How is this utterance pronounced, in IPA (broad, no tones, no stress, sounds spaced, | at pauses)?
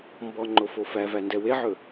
m b ɔ ŋ͡ǃ o f o f æ v æ n d ɛ w e ʕ ɵ